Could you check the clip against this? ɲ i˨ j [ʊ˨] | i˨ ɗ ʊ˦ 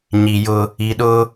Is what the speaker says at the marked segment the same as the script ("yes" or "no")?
no